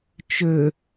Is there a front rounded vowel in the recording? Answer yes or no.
yes